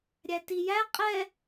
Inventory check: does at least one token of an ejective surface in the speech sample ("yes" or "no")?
yes